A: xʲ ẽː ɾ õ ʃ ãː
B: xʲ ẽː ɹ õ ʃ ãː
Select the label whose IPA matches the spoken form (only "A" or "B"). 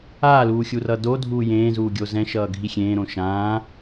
A